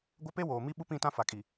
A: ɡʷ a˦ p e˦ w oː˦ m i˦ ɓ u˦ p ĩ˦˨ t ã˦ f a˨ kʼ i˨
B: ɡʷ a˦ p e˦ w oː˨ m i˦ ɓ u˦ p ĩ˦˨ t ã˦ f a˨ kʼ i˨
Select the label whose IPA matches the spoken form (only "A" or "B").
B